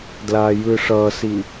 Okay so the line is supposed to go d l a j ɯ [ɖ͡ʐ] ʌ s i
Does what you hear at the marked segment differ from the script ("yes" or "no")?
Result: yes